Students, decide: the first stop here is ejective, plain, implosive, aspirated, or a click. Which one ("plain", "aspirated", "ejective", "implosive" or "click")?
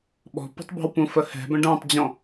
implosive